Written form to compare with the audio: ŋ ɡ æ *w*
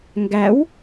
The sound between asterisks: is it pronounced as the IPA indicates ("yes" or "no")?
yes